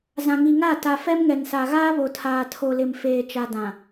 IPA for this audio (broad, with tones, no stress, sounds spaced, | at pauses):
z ã˨ ŋ i˨ ŋ a˦˨ t a˨ f ɛ˦ m ŋ ɛ˨ n s a˨ ɣ aː˦ β o˨ tʰ aː˨ tʰ o˨ l ɪ˨ m f eː˨ t͡ʃ a˨ d ã˨